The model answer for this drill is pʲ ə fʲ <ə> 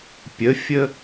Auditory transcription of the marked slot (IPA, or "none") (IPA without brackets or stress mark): ə